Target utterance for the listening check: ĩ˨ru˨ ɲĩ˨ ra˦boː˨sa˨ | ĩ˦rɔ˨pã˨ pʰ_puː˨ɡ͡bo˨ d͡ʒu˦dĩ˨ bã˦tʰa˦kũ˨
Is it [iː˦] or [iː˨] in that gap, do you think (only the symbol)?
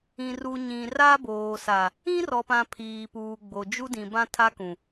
iː˨